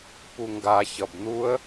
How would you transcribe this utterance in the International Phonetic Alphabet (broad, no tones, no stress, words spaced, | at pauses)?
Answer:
puŋɡa çʌbn̪uə̯